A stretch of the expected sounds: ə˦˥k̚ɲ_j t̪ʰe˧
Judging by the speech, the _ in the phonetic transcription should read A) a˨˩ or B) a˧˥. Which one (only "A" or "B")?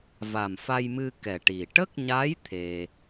B